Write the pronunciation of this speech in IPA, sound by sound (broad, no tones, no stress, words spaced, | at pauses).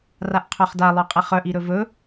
raʔqʰœχda lˠœqʼɛχœ ʔiɾɵvɵ